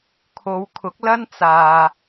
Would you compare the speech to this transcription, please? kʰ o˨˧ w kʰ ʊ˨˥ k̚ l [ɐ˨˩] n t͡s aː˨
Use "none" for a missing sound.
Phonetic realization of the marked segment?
ɐ˥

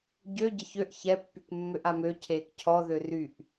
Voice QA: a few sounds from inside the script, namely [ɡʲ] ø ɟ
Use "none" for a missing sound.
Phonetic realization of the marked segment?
ɟ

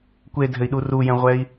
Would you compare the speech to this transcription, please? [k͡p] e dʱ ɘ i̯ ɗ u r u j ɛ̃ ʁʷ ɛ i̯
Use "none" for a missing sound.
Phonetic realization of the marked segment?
kʷ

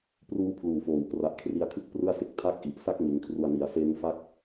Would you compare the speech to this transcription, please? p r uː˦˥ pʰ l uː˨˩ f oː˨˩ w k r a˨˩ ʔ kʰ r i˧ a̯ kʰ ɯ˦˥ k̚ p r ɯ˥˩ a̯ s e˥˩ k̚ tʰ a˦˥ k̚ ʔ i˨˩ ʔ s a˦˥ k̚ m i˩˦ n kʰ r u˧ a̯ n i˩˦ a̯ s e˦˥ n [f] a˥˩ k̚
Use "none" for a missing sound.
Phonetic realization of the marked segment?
f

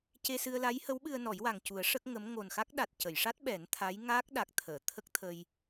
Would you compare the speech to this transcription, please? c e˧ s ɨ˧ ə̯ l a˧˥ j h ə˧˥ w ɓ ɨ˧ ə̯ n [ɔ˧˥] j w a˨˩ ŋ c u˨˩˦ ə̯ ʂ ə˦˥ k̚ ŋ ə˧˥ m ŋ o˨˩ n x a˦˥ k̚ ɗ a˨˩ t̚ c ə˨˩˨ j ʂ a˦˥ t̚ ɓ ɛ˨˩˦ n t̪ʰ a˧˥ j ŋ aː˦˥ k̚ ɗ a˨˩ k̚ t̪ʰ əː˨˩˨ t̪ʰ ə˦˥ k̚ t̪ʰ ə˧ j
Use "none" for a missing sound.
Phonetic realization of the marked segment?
ɔ˨˩˦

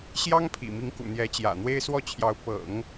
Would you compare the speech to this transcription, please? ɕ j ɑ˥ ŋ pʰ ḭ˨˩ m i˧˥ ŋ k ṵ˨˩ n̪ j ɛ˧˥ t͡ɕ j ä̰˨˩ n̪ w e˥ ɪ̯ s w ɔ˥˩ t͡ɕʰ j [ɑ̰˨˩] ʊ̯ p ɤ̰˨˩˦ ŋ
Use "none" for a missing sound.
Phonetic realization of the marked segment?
ɑ˧˥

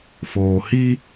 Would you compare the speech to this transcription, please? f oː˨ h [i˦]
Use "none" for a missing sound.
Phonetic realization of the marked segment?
i˦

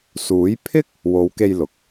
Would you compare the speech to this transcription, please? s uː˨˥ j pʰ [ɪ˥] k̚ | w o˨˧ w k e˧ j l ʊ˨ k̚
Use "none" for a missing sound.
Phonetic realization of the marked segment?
ɪ˥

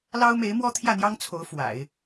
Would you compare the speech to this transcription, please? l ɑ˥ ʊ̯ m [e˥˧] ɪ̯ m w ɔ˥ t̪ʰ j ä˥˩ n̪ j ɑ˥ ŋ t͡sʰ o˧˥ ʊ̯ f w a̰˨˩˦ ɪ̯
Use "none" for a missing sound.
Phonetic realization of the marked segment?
e˧˥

